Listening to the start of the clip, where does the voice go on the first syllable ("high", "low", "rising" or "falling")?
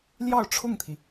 falling